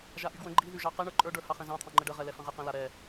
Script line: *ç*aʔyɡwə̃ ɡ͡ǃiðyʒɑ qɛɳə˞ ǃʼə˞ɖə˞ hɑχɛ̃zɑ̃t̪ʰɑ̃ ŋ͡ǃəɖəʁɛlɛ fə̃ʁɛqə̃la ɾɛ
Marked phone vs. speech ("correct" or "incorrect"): incorrect